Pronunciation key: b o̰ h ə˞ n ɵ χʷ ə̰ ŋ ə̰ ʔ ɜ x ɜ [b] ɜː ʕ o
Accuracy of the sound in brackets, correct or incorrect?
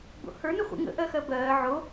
correct